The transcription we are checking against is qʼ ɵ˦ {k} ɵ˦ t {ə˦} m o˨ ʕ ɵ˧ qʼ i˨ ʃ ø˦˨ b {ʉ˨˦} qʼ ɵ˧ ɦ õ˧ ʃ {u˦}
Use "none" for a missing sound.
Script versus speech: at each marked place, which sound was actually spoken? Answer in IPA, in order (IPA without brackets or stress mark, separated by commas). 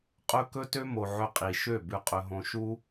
k, ø˦, ʉ˧, u˦